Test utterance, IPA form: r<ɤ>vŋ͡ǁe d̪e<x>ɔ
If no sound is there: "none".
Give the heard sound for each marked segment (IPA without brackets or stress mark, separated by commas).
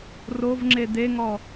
o, ŋ